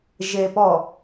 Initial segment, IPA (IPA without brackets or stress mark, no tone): ʒ